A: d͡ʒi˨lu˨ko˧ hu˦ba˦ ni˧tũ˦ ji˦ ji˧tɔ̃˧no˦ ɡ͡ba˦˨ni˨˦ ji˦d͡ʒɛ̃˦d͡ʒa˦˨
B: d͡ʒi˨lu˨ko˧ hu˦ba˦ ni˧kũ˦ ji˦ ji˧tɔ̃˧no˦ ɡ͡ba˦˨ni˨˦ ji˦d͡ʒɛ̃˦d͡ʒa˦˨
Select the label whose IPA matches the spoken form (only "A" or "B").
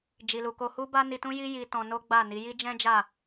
A